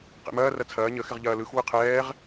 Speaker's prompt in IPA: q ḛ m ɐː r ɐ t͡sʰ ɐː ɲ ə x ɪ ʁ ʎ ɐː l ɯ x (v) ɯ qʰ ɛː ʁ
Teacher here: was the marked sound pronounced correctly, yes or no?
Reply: no